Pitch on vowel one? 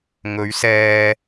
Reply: rising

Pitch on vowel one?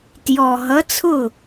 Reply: low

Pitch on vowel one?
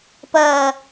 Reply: falling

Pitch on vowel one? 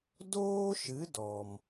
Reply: high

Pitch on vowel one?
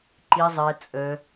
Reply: low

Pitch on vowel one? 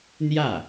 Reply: falling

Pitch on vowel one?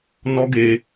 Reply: high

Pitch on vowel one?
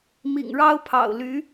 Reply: low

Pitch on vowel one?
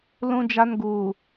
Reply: high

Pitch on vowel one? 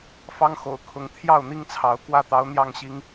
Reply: high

